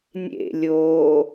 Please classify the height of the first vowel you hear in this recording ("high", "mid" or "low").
mid